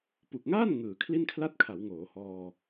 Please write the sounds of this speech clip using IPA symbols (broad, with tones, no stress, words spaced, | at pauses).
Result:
pu˨˩k̚ŋaː˥˩n ŋɯː˩˦kʰli˥˩nkʰla˥˩t̚kʰa˩˦w ŋoː˩˦hɔː˧